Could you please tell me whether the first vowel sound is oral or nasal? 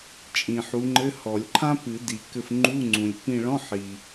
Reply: nasal